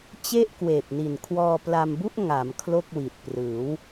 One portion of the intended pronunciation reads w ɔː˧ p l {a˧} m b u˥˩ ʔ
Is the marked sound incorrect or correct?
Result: correct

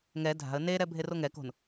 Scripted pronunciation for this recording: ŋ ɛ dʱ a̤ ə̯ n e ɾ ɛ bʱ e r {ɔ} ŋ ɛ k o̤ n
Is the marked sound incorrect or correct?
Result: incorrect: o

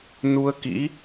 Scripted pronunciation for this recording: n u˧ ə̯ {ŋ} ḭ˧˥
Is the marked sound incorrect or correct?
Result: incorrect: k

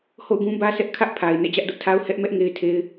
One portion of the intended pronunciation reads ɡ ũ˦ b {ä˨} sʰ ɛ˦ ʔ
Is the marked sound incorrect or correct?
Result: incorrect: ä˦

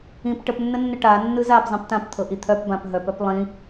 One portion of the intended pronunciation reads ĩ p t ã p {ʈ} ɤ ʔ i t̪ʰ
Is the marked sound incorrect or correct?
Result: incorrect: t̪ʰ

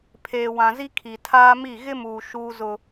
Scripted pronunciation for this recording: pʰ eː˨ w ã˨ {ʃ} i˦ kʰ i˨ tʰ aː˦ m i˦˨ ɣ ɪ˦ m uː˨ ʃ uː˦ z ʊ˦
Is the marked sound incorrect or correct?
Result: incorrect: z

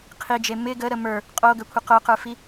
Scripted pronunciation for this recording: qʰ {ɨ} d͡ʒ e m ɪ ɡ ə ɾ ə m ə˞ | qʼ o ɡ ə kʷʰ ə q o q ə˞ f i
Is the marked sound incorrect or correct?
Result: incorrect: i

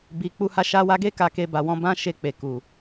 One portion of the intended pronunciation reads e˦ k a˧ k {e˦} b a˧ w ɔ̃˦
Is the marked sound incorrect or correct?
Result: incorrect: e˧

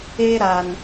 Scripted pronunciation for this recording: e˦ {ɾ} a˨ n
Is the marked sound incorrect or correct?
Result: correct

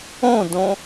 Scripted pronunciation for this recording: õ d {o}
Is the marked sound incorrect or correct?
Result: incorrect: õ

